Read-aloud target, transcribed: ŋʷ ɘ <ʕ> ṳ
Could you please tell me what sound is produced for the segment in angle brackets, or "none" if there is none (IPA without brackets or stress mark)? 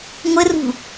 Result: r